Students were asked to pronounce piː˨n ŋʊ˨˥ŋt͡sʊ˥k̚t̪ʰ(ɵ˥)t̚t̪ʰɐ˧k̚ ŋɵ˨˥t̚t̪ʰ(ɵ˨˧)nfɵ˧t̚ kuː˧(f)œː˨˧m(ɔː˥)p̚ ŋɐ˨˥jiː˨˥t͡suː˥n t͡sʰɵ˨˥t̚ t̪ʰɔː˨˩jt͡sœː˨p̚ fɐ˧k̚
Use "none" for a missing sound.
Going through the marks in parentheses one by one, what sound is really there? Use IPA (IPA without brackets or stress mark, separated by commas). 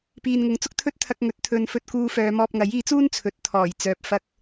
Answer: ɵ˥, ɵ˨˧, f, ɔː˧